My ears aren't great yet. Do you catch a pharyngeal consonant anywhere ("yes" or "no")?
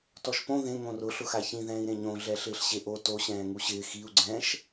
no